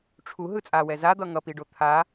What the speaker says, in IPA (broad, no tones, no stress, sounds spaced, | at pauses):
ʈ͡ʂʰ u ɦ ɯ t͡sʼ a w ɛ z a d̪ ʌ ŋ ʌ p i ɖ o t̪ʰ a